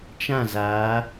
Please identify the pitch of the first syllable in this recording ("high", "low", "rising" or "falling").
falling